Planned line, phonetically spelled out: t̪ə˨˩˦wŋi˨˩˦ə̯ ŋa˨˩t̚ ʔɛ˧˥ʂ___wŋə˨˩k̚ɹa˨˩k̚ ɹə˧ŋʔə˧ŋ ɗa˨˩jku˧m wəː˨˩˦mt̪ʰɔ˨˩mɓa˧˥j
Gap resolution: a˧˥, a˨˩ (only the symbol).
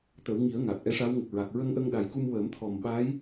a˧˥